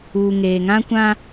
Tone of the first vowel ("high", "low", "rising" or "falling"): low